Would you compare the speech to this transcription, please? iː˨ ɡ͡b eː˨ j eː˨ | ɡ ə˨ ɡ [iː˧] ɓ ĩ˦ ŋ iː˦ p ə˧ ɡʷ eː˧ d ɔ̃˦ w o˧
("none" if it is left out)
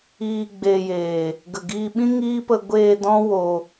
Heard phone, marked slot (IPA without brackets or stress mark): iː˧